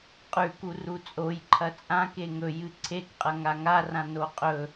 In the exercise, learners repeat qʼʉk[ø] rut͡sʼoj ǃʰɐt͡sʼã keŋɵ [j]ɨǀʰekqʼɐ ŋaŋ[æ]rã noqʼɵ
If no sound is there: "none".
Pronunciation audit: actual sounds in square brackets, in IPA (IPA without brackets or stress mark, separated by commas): u, j, a